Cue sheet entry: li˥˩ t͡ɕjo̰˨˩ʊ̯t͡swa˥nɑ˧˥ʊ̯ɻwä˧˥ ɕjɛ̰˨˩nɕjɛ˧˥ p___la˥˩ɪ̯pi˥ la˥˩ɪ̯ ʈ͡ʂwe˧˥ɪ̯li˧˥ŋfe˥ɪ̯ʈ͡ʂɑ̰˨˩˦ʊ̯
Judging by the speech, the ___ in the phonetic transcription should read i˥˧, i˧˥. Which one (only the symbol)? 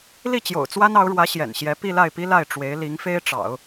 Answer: i˥˧